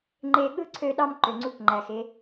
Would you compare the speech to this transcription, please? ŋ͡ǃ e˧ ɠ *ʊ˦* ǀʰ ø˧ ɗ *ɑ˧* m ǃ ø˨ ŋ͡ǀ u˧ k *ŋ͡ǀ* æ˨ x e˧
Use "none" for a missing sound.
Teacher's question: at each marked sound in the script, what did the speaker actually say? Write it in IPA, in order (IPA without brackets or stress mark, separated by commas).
ɯ˦, ɑ˧, ŋ͡ǃ